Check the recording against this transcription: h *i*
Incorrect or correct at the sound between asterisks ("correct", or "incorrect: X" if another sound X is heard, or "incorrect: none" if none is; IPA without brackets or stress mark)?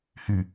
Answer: incorrect: y